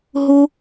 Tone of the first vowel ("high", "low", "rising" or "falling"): high